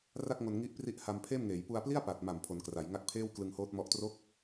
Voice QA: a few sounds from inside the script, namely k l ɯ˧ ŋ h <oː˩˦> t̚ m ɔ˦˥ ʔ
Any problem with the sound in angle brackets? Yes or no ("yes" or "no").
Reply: yes